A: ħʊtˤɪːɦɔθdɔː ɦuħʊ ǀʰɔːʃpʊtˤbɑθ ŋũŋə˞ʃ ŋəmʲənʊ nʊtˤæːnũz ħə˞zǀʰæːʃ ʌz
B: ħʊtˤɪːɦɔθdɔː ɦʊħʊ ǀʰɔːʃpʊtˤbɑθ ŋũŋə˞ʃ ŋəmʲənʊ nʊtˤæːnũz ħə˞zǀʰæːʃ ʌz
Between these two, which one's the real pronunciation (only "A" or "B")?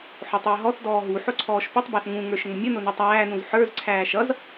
A